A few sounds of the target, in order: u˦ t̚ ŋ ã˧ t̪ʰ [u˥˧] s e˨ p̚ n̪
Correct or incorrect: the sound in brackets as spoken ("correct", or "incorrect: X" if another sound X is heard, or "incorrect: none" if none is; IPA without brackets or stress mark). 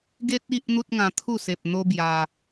correct